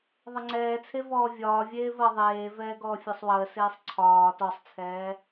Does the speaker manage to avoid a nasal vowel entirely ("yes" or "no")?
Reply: yes